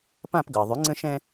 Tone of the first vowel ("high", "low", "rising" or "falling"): falling